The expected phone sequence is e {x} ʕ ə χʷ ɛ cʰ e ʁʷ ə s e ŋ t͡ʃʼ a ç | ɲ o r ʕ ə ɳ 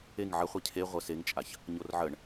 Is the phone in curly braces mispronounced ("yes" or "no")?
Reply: yes